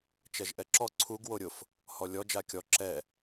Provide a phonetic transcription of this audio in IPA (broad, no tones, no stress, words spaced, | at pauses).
t͡ʃɛʒʔɛǁɔ ǀʰuɡ woɾʲʊf | hɔlʲɔ d͡ʒakʲɔ ǁɛ